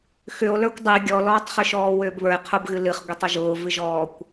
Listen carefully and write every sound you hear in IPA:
x ʏ o̯ l ə˞ kʷ dˤ ɨ ɡʲ ɔ l ɔː tˤ χ ʏ ʃ ɔː w ʏː b β ə˞ e̯ qʰ ʊ b ɣ ɨ l ɨ χ ɡʷ e tˤ ʊ ʒ ʊː v ɨ ʒ ɔː kʷ

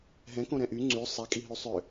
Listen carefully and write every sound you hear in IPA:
ɦ ɛ̃ k õ ɾ ɛ̃ ʔ y ŋ͡ǀ y sˤ ɛ kʼ i ɦ y sˤ ʏ

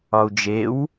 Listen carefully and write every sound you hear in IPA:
ɒ u̯ d͡ʒ e w

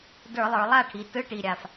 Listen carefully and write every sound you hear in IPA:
d ə˞˧˩˧ lˠ ə˞˩˧ lˠ a˥˩ ʈʰ i˩˧ t ɯ˧˥˧ ʈ i˨˩ ɾʲ a˨˩ f

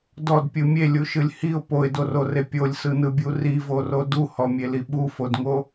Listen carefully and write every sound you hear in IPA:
d ɔ d pʲ ɯ mʲ e lʲ u ʃ ɯ lʲ h i ʊ̯ p o ɪ̯ d o r o r e pʲ o lʲ s ɯ n ɯ bʲ u r i v o r o d u h ɔ mʲ e l i ɓ u f o d ŋ o

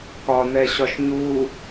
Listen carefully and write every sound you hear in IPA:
k ɒ n̪ ɛ ɕ ɒ ʃ ɲ u

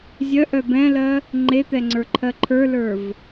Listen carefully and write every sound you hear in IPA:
zʲ œ ʔ œ b ɛ̃ l ɜ | ŋ͡ǃ e t̪ ɛ ŋ͡ǀ ə˞ ǃʰ ɜ ǃʰ ə˞ l ə˞ v

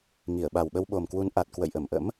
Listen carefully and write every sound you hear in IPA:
ŋ i˧˩ ə̯ ɓ a˨˩ w ɓ ə˧ w ɓ o˨˩ m k w u˨˦ n ʔ a˨˩ t̚ k w ə̰˧˨ j ʔ ə˧˩ m ʔ ə̰˧˥ m

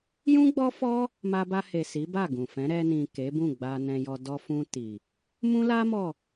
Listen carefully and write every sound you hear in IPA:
j ũ˦ ɡ͡b ɔ˦ f ɔ˦ | m a˧ b a˧ h e˨ s i˨˦ b a˦˨ ɡ ũ˨ f ɛ̃˨˦ ɾ ɛ˧ n ĩ˨ k e˨˦ b ũ˦˨ ɡ͡b a˧ n ɛ̃˧ j ɔ˧ d ɔ˧ f ũ˧ t i˨ | m ũ˦ l a˦ m ɔ˦˨

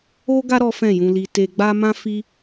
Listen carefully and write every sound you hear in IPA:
o˦ ɡ a˦ ɾ ɔ˦ f ɛ̃˦˨ j ũ˧ l i˧ t e˧ ɡ͡b a˦ m ã˦ f i˦

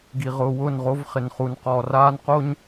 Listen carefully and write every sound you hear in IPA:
ɡ i˨ ʁ ʊː˨ w ʊː˦˨ n ʁ o˦ v χ ɪ˨ n χ u˨ n q ɔ˨ r aː˦ n q o˦ ɲ

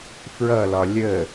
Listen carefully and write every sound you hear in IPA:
f ɹ ʌ l ɒ lʲ ə

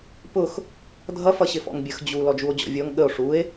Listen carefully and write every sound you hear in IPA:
p ʊ x | dʱ ʌ f ʌ ɕ ɪ f ɔ̰ ŋ bʲ ə x d͡ʑ u l ɔ d͡ʒ u o̯ d͡ʑ ɔ̰ vʲ ɔ ŋ ɠ ə o̯ ʂ u e̯

